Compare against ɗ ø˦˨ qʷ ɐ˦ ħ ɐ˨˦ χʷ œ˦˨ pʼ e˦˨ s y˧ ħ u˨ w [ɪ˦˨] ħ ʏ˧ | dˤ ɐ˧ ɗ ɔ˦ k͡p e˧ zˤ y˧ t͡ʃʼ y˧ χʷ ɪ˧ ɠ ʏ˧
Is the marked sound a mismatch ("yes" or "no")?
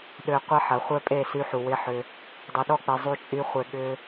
yes